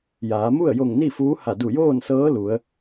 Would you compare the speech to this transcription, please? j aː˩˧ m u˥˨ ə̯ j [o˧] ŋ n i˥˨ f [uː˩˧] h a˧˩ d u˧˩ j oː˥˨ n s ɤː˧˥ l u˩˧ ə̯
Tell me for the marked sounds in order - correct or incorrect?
incorrect, incorrect

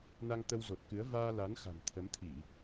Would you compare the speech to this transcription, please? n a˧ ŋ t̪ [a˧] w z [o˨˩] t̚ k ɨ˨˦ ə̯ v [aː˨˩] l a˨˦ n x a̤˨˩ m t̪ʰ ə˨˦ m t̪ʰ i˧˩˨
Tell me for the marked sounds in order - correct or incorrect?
incorrect, correct, incorrect

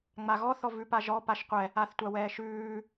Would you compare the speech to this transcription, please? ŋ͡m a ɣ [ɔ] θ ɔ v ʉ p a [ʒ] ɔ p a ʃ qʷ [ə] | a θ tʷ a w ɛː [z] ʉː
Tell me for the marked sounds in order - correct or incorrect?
correct, correct, incorrect, incorrect

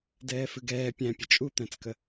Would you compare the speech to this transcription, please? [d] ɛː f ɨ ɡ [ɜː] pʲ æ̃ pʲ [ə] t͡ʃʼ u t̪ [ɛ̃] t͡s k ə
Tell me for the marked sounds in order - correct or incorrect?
correct, incorrect, correct, incorrect

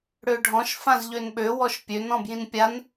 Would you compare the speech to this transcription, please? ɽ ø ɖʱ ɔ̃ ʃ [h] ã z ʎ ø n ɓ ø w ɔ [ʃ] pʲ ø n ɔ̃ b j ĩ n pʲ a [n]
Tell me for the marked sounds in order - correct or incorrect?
incorrect, correct, correct

